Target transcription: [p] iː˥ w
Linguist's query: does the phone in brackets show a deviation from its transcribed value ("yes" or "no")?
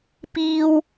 no